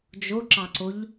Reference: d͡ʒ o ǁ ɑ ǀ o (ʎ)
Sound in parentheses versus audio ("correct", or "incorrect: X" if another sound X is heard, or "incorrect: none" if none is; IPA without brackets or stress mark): correct